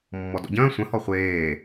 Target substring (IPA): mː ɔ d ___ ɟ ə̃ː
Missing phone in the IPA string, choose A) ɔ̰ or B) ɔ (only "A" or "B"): A